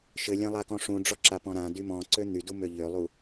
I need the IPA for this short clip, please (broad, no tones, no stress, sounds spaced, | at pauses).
ʃ ɘ lʲ ã lˠ a k ɔ̃ ʂ ũ ɖ͡ʐ ɔ ǁ a p ɔ̃ ɾ ã d y m ɔ̃ ǀ ø n̪ y d u m ø ʎ ø lˠ u